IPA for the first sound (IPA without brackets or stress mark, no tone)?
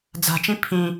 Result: d͡z